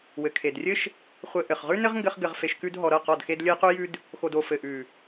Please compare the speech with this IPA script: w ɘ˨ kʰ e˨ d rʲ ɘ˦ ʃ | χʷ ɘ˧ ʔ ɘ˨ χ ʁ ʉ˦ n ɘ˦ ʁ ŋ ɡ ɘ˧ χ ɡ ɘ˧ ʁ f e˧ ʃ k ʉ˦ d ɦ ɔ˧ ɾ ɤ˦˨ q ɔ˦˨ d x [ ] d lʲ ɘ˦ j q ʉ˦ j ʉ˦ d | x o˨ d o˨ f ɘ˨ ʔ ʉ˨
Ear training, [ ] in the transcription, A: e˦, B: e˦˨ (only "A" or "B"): A